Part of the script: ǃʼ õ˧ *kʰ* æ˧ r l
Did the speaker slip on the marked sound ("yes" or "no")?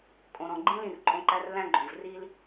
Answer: yes